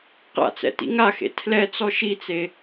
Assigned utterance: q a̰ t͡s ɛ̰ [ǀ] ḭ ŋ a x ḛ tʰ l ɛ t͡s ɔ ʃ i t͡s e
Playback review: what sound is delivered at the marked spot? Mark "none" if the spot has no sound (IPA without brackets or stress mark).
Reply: t